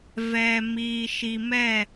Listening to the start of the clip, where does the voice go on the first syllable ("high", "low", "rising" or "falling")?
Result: low